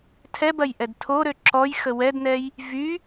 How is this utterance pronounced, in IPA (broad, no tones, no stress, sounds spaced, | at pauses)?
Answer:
tʰ ɛ b ɐ j ʔ ɛ d tʰ o ɾ ø ǁ ɔ j x ə w ɛ d n ɛ j | v y